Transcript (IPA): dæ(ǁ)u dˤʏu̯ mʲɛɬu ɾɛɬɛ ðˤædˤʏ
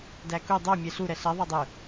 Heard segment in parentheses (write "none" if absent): k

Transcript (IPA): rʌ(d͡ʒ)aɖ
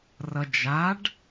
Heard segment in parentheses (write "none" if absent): d͡ʒ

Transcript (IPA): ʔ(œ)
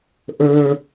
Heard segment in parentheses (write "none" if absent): œ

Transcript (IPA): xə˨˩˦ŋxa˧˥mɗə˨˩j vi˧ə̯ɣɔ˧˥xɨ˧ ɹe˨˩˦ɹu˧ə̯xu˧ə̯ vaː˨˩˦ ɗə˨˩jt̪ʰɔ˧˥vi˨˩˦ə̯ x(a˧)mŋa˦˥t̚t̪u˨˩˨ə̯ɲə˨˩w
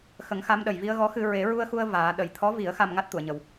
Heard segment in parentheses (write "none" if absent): a˧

